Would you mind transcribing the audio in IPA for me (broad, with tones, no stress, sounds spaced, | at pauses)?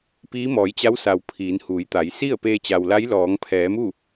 p iː˧˥ m ɔː˩˧ j t͡ɕ a˧˥ w s a˩ w pʰ iː˩˧ n h uː˩˧ j t̪ a˩˧ j s i˥˨ ə̯ p eː˧ t͡ɕ a˩ w l a˧˥ j l ɔː˩˧ ŋ pʰ ɛː˩˧ m u˥˨